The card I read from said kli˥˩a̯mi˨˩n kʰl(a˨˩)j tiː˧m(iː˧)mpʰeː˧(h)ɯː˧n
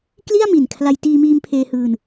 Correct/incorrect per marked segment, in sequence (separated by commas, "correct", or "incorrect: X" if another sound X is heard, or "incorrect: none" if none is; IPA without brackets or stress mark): incorrect: a˧, correct, correct